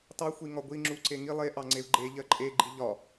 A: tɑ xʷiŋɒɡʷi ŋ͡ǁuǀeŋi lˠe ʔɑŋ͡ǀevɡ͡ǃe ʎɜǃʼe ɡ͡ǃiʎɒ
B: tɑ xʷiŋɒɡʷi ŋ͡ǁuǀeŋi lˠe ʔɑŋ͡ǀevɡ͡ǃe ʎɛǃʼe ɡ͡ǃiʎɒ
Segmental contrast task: A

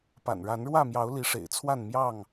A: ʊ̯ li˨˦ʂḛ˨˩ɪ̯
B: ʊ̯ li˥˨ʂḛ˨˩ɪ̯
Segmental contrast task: A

